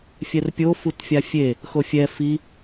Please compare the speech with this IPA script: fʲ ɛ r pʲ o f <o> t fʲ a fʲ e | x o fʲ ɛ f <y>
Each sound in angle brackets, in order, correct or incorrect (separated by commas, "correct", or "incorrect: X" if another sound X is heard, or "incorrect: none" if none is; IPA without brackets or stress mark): incorrect: u, incorrect: i